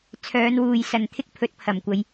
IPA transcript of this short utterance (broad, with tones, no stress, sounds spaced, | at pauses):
t͡sʰ œː˨˧ n w uː˨ j s ɐ˨ n t̪ʰ ɪ˥ k̚ pʰ ɵ˨˥ t̚ pʰ ɐ˨˩ m kʷ ɐ˨˧ j